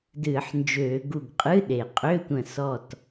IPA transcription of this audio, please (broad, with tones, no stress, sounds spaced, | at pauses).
d ɨː˧˩˧ ħ n d͡ʒ øː˧˩˧ ɡ u˧˩ ɡ qʼ ɨ˧˥˧ ɗ e˩ qʼ ø˧˥˧ tʷ ə̃˧˩ s ɔ˧˩ t